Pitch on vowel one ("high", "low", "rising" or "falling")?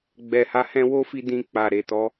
low